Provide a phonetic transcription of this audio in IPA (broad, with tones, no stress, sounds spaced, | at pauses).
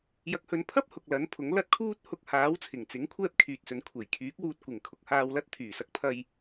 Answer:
j ɐ˧ k̚ h ɵ˧ n pʰ ɐ˥ p̚ h ʊ˨ k̚ l ɐ˨˥ n pʰ ʊ˨˥ ŋ l ɐ˥ t̚ kʰ uː˥ t̚ h ʊ˧ k̚ h aː˨˥ w t͡sʰ ɪ˨˩ ŋ t͡s ɪ˨˥ ŋ kʷʰ ɛː˥ p̚ kʰ yː˨ t̚ s ɵ˨˧ n kʷʰ e˨˩ j kʰ yː˨˥ k̚ w uː˧ t̚ kʷ ɪ˨˩ ŋ kʰ ʊ˨ k̚ h aː˧ w l ɐ˥ t̚ t̪ʰ yː˨˩ s ɐ˧ k̚ pʰ ɐ˧ j